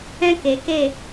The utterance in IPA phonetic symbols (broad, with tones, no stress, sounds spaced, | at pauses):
ɛ̃˦ k eː˨ k e˦˨